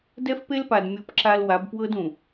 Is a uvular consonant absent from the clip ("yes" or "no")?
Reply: yes